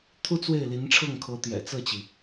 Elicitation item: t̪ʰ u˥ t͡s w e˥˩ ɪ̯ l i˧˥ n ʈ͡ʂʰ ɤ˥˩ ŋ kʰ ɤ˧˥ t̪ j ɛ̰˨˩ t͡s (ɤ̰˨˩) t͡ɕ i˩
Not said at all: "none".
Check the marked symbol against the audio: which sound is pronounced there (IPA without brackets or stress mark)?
ɤ˥˩